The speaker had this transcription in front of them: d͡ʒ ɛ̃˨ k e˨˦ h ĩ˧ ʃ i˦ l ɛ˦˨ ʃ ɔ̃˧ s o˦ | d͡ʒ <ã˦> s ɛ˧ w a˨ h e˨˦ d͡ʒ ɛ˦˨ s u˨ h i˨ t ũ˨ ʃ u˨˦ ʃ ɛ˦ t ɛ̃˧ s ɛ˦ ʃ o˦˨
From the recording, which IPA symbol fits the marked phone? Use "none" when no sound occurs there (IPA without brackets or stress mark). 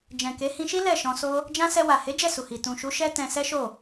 ã˦